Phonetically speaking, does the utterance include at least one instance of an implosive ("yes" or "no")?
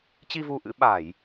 yes